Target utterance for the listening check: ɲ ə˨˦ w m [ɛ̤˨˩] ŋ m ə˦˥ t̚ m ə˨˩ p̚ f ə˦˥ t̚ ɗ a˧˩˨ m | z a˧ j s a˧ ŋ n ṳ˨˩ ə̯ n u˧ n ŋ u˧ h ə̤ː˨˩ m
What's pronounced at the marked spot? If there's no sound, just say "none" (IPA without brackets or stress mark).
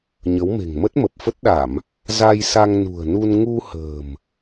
e̤˨˩